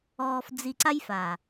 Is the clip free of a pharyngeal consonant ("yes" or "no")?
yes